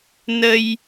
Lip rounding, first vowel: unrounded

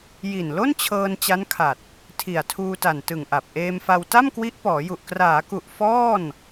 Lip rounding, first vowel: unrounded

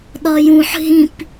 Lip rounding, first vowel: rounded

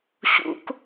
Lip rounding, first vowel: rounded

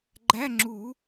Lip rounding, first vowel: unrounded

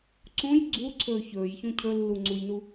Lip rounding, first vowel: rounded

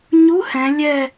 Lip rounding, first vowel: rounded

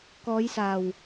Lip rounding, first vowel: rounded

